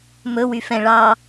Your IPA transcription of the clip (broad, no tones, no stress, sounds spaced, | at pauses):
m ɵ w y f ɛ̃ ɭ ɑ